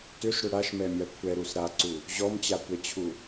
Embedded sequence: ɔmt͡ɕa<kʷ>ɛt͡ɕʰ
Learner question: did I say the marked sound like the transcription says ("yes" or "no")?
yes